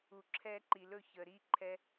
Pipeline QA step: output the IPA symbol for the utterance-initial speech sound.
u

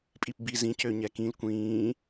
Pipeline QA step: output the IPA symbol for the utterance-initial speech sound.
pʼ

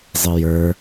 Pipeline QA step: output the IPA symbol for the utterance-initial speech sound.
zˤ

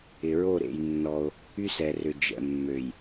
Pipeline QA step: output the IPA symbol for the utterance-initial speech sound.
ɪ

